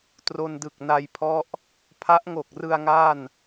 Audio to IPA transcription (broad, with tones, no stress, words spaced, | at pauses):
tro˧ndɯ˨˩k̚ na˧jpʰɔ˦˥ʔ | pʰa˦˥ʔŋo˨˩k̚rɯ˧a̯ ŋa˥˩n